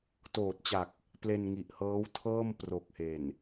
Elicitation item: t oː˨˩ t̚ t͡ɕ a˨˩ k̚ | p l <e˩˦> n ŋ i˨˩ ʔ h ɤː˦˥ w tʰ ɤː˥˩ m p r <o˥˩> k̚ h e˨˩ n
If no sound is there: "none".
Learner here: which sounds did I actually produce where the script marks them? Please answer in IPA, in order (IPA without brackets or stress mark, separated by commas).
e˧, o˨˩